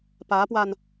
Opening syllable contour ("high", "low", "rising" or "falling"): rising